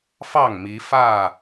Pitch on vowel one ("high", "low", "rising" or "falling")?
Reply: falling